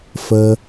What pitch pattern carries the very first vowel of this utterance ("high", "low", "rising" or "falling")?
low